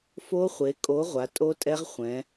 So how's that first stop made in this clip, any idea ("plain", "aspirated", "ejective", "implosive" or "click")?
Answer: ejective